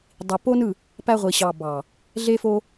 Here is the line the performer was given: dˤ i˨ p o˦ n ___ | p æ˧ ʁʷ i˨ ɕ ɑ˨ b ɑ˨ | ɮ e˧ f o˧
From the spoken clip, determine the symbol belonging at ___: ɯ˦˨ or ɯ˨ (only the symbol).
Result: ɯ˦˨